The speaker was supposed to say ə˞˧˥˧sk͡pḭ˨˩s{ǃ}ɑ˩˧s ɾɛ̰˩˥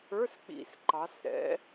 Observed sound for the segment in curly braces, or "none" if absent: ǃ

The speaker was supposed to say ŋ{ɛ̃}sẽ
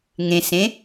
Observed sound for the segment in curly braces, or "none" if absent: ẽ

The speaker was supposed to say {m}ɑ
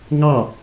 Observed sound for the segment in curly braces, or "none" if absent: ŋ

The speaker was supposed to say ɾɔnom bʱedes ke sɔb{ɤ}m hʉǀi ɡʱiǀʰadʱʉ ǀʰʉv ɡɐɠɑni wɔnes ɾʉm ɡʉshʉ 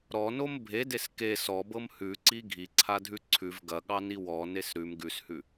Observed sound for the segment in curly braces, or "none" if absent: ɤ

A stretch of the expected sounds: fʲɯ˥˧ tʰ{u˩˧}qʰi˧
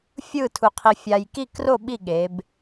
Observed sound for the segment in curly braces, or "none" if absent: u˧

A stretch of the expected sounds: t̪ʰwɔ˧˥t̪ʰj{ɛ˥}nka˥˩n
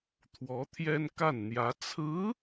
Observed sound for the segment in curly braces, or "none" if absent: ɛ˥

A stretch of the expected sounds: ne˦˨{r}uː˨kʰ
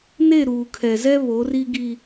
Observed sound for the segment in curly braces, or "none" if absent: ɾ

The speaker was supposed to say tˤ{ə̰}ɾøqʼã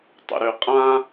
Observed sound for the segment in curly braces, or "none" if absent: ə̰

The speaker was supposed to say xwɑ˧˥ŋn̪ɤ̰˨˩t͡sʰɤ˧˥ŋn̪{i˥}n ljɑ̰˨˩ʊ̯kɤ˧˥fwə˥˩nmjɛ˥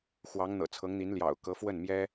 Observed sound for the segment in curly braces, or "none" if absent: i˧˥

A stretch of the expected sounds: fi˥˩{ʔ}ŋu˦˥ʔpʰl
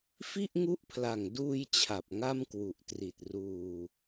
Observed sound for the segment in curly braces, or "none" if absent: ʔ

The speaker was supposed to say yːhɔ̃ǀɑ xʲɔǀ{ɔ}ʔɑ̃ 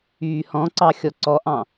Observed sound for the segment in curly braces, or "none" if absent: ɔ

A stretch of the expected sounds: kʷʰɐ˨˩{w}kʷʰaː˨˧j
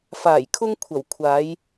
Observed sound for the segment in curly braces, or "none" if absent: w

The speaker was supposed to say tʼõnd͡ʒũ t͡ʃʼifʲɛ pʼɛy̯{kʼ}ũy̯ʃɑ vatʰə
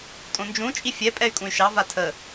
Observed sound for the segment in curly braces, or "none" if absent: kʼ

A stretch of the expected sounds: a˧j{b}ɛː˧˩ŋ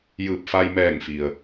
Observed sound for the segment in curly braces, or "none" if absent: m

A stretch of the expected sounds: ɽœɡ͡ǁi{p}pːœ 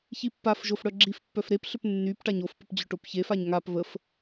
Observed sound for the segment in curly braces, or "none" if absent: f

